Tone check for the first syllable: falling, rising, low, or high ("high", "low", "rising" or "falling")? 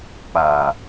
low